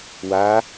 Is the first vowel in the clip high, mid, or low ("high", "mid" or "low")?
low